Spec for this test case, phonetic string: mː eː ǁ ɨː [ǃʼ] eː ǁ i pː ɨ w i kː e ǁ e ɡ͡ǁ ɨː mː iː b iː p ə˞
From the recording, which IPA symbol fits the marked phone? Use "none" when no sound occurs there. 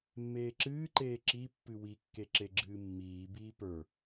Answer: ǃ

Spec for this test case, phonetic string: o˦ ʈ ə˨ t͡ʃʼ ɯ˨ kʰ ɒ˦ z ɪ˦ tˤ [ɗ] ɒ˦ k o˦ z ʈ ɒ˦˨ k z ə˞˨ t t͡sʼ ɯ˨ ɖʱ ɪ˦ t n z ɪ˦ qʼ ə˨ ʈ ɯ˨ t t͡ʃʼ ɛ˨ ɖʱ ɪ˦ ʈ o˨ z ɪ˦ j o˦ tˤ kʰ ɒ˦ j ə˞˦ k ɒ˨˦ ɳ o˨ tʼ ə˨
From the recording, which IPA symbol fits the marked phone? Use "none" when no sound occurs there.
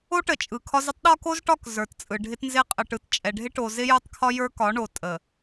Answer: ɗ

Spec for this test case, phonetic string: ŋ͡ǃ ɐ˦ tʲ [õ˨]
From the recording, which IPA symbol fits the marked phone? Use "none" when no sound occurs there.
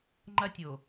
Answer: o˨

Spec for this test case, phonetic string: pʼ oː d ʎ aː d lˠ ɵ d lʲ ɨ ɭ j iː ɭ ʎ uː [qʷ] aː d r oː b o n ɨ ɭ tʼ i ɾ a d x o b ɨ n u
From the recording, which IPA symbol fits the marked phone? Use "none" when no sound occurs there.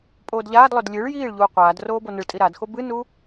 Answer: qʷ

